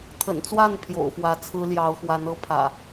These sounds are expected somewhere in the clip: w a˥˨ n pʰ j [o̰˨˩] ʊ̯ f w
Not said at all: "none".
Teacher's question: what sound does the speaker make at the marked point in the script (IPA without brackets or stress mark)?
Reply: o̰˨˩